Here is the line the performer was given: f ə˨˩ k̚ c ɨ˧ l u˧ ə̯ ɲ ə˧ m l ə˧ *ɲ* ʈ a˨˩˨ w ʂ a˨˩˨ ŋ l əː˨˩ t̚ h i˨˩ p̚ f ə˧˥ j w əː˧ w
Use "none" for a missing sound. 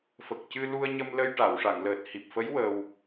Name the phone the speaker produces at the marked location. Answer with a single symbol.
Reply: j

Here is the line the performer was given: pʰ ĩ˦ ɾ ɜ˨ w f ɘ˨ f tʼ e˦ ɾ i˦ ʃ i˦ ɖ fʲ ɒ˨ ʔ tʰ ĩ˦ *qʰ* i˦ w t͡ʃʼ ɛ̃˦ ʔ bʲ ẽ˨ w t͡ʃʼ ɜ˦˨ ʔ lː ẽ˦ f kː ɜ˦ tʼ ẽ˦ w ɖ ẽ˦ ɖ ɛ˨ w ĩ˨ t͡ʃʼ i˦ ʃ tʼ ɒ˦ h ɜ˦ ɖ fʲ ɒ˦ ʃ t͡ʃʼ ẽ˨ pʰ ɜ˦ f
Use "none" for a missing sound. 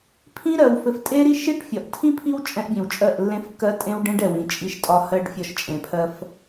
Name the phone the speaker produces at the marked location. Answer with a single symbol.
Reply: pʰ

